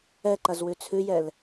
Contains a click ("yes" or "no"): yes